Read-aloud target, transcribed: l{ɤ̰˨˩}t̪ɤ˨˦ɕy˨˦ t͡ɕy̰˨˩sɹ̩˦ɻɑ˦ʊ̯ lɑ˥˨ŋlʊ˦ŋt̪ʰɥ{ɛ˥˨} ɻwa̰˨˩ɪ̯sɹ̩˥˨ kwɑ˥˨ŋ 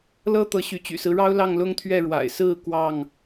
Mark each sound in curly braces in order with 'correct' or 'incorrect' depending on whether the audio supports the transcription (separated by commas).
incorrect, correct